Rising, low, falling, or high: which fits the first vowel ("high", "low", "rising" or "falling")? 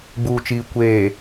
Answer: low